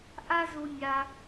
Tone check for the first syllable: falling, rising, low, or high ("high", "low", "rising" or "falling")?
high